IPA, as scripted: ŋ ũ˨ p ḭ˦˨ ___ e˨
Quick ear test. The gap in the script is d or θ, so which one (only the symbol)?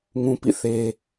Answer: θ